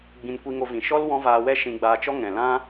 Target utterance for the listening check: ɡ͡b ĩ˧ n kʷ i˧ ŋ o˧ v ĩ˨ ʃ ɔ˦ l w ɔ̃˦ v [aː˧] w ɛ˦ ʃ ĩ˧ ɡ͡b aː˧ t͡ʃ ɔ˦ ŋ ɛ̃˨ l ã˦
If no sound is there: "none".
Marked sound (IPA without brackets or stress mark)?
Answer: aː˧